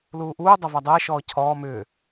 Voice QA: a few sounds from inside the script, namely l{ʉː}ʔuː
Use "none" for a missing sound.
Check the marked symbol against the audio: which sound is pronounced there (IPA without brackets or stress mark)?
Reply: uː